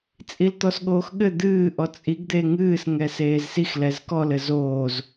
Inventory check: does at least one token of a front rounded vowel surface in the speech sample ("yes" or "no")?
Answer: no